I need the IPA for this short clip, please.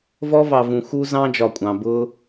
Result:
v ɔ˦ v ɑ˨ v ũ˨ x u˦ z ɑ̃˦ d͡ʒ ɒ˨ kʷʼ ɑ̃˨ b ʊ˦

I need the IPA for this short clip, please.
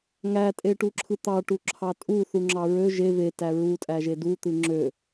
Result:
ŋ æ tʼ e ʈ u ǁʰ ɯ t̪ ɑ ʈ u ǁʰ ɑ tʼ u θ u ŋ͡ǁ ɑ ɹ ø ʒ e v e t æ ɹ u tʼ æ ʒ e d u t̪ ɯ ŋ͡ǁ ø

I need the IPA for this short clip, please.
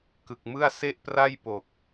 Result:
k ɯ˨˩ k̚ m ɯ˥˩ a̯ s e˥˩ ʔ p r a˥˩ j p o˨˩ k̚

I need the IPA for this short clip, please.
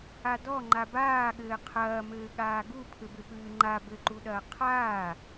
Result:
a d ɔ ŋ͡ǃ a b aː ɠ ɘː qʰ ɐː m ɘː ɠ aː ɡ u pʰ ɘ b ɘ p ɨː ŋ͡ǃ a b ɘ ǃ u ɗ ɐː qʰ aː

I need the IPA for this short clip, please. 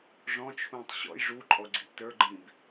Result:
ʐ ɔ̃ t͡ʃʰ ũː tˤ ɕ ɔ̰ j ʐ u ǃʼ ɔ ɡ͡ǀ ḭ ʔ t ə˞ ɡ͡ǃ ĩ b

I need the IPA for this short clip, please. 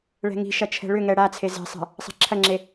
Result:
ɭ ɛ̤ ŋ i̤ ʃ ɐ t͡ʃʰ ɛ̤ ɭ ʏ ŋ ɛ ɽ a t͡sʰ e z e̤ sˤ ɛ̤ | sˤ ɛ̤ ǁʰ ɐ ŋ͡ǁ e

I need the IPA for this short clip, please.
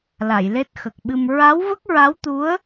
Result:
l a˨˩˨ j l e˦˥ t̚ x ə˨˩ k̚ ɓ ɨ˧ m ɹ a˧˥ w v ə˦˥ k̚ ɹ a˧˥ w t̪ u˧˥ ə̯

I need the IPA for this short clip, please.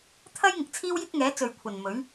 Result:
t̪ʰ ɐ˥ j ŋ ɪ˨˥ k̚ t͡sʰ iː˥ w j ɪ˥ k̚ ŋ ɛː˨˥ t͡s ɵ˨ ɥ kʷʰ ɐ˨ n m ɵ˨˥ ɥ

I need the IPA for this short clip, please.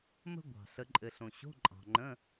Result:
m ə̤˧ ɡʷ ɑ̤˩ ɬ ə˩˧ ǃʼ ɘ˩ ɬ õ˩ ɕ o̤˧˥˧ ǃʼ ɑ̤˩ ŋ͡ǃ ə̃˧˥˧

